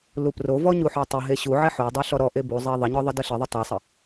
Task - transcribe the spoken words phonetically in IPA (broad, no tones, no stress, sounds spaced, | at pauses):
l u p r o v ɔ ɲ u ħ ɔ tˤ ə ɦ e ɕ u ʕ ɛ ħ o dˤ ɑ ɬ ɔ ɾ ɔ ʔ e b u zˤ e ðˤ ə ɲ ɔ ðˤ ə d ə ɬ ə ðˤ ə tˤ o sˤ ə